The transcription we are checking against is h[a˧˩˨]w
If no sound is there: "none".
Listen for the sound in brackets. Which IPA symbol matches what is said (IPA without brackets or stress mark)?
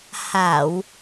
a˧˩˨